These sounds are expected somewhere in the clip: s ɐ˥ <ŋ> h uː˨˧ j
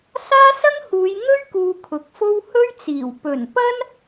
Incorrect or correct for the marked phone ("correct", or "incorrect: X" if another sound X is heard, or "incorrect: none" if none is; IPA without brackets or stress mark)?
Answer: correct